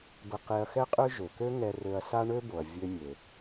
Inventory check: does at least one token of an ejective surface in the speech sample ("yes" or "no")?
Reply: yes